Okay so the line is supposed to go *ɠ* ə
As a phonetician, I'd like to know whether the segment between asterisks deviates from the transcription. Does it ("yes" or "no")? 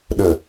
yes